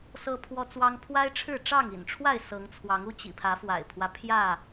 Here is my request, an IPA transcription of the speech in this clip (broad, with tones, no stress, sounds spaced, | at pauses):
s ɤ˦ pʰ w ɔ˦ t͡s w ɑ˦ ŋ pʰ w a˦ ɪ̯ ʈ͡ʂʰ ɻ̩˥˨ ʈ͡ʂ ɑ˥˨ ŋ ḭ˨˩ n ʈ͡ʂʰ w a˥˨ ɪ̯ s ɤ˨˦ ŋ t͡sʰ w ɑ˨˦ ŋ u˦ t͡ɕ ḭ˨˩ pʰ ä˨˦ f w a̰˨˩ ɪ̯ pʰ w ä˦ pʰ j ä˥˨